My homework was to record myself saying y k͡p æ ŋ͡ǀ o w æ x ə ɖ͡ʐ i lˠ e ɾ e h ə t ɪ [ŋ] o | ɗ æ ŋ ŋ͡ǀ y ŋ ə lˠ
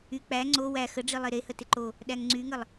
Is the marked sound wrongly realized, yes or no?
yes